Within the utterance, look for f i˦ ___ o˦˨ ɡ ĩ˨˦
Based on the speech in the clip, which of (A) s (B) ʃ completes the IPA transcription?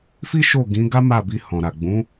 B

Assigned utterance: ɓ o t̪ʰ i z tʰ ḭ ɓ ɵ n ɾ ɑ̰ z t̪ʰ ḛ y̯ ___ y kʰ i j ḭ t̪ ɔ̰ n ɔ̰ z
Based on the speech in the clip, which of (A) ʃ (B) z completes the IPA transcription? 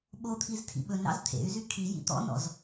B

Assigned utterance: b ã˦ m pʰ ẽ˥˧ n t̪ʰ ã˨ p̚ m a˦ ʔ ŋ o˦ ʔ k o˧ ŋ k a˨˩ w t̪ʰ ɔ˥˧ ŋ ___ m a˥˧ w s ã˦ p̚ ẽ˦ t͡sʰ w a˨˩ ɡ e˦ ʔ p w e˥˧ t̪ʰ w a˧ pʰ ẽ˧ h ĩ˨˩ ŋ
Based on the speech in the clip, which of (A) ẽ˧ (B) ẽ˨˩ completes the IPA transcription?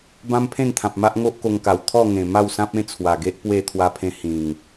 B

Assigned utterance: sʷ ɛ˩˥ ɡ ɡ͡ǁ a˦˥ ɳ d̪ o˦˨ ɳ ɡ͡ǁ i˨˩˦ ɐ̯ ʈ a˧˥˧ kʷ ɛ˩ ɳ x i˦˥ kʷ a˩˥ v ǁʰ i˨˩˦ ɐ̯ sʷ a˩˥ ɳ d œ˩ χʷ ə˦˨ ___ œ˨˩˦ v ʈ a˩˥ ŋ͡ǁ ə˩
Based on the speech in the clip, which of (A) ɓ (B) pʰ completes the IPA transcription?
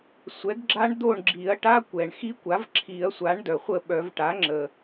A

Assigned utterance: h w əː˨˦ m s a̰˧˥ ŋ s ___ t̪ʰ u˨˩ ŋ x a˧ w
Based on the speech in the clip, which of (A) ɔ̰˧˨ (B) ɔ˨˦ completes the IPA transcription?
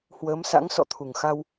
A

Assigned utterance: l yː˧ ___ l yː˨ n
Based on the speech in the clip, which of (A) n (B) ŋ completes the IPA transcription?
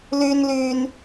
A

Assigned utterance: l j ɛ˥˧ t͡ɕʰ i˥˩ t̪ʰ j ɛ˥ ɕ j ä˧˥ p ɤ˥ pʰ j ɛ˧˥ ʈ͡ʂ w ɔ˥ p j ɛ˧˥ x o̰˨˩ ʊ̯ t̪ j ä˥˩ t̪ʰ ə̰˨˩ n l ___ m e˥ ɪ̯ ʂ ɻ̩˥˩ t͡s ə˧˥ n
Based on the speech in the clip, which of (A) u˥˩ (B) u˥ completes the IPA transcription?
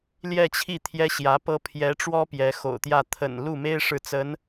A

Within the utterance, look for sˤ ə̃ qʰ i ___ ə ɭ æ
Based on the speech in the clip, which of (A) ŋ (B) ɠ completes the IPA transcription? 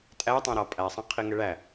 A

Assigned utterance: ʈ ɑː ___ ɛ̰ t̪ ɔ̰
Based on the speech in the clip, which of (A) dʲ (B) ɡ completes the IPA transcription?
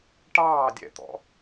A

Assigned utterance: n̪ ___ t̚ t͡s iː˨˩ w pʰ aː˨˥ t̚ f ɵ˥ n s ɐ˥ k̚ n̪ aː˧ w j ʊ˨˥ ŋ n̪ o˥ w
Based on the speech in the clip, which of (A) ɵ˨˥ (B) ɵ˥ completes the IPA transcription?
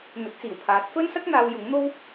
A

